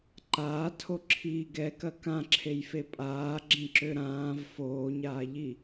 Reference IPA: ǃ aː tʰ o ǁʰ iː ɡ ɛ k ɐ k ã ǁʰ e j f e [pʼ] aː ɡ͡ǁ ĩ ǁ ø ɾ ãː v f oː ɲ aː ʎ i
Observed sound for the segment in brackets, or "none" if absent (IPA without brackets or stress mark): pʼ